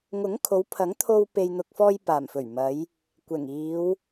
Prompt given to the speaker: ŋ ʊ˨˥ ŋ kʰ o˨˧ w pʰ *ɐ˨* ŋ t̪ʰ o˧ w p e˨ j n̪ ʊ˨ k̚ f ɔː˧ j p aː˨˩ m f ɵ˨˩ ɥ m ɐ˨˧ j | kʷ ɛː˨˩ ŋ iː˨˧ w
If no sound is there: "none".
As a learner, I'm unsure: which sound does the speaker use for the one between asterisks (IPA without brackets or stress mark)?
ɐ˨˥